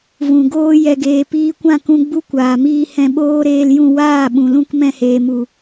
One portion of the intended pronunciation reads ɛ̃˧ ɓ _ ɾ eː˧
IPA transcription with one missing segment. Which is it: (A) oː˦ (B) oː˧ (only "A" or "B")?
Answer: A